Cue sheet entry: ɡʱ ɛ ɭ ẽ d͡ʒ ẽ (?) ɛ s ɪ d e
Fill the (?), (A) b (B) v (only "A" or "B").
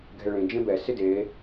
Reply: A